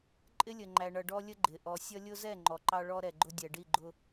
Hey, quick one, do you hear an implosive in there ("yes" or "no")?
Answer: no